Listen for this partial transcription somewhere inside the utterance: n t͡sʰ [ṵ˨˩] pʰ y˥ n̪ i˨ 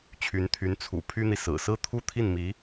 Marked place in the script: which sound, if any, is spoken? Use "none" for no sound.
ṵ˨˩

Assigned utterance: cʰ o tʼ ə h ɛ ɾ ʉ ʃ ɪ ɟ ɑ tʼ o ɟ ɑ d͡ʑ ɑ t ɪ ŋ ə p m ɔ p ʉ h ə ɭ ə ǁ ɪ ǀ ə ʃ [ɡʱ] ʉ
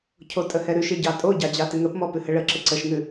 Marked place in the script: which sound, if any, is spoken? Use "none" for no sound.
ŋ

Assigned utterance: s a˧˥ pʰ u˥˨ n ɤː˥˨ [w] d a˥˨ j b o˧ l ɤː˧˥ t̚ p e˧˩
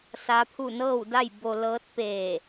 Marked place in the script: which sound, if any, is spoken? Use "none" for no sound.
w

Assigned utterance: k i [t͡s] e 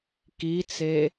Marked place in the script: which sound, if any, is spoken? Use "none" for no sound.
t͡s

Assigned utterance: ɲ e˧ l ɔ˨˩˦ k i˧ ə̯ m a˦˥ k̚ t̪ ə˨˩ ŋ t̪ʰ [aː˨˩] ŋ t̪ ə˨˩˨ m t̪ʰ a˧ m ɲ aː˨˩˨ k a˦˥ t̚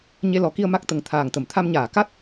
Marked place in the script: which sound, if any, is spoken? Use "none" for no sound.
aː˨˩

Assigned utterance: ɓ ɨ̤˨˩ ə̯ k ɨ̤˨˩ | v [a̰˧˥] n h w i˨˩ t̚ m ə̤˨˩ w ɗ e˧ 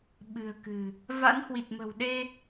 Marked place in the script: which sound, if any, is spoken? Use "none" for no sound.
a̰˧˥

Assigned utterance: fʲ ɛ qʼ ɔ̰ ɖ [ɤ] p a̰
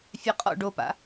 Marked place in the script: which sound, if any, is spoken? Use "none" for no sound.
o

